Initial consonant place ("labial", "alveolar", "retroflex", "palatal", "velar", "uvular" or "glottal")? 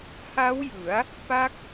glottal